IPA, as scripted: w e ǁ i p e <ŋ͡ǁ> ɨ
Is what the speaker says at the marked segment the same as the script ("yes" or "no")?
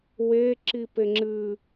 yes